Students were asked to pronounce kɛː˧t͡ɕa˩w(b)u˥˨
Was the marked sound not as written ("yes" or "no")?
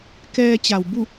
no